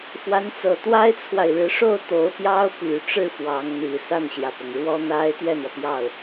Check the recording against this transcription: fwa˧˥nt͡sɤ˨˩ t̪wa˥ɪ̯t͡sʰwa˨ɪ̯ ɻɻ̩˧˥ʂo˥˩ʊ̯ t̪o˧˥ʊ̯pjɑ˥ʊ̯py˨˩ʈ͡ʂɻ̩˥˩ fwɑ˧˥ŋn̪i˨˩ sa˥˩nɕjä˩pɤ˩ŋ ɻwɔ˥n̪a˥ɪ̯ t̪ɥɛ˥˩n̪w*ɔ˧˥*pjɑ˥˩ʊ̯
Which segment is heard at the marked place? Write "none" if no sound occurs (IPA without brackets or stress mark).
ɔ˩